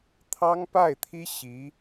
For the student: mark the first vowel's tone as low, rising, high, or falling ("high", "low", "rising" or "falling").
high